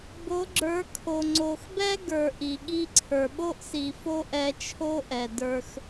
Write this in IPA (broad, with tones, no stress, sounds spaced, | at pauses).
b o˨˦ ɡ͡ǁ ə˞˨˦ kʰ o˨ ŋ͡ǀ o˨ x b ɛ˦ ɡ ə˞˨ ʔ i˨ ɠ i˧ ǀʰ ə˞˨ ɓ o˦ ʔ s i˨ f o˦ ʔ ɛ˧ t͡ʃʰ o˦ ʔ ɛ˨ d ə˞˧ x